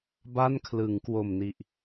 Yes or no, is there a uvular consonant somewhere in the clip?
no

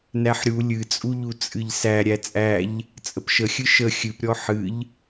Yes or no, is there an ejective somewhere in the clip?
yes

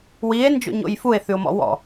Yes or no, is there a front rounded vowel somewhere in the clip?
no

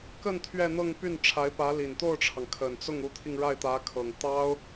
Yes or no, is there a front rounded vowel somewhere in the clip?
yes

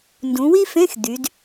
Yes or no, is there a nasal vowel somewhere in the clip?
yes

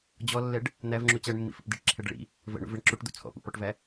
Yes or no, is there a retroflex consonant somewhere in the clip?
yes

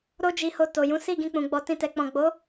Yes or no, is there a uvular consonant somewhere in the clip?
no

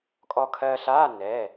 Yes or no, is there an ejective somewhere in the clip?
yes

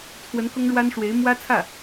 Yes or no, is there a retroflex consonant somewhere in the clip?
yes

